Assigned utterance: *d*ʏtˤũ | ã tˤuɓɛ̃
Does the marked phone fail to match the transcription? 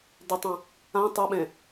no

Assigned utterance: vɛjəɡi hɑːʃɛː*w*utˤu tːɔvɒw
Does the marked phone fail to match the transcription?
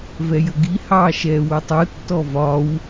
no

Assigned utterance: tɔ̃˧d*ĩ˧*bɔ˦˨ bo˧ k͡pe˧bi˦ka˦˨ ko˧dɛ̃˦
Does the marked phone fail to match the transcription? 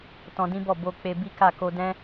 yes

